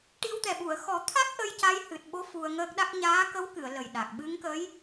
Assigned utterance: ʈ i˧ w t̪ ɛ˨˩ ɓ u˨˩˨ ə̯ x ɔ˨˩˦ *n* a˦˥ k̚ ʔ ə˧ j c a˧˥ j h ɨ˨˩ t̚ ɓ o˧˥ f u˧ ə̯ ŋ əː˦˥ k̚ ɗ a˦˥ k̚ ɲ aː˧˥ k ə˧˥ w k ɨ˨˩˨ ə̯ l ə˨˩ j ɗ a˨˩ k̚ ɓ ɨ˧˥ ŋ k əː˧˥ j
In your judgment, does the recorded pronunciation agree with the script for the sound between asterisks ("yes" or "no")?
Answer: no